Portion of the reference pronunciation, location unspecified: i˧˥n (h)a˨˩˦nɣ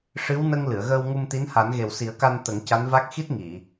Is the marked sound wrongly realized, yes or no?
no